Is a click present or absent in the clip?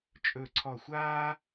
present